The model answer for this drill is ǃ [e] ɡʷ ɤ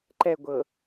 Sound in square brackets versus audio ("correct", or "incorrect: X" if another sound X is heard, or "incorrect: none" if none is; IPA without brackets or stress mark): incorrect: ɛ